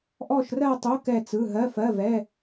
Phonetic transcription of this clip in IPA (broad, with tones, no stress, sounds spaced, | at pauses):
ʔ ɔ˥˧ ʃ r ɜ˥˧ tˤ o˧˥˧ k ɛ˥˧ t͡s ɯ˧˥˧ ɦ ɜ˧˥˧ f ɜ˧˥˧ v ɛ˧˥˧